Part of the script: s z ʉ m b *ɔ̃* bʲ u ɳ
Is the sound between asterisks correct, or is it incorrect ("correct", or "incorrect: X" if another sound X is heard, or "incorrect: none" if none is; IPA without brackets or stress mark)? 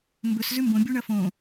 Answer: incorrect: õ